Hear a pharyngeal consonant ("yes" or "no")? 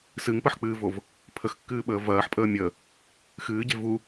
yes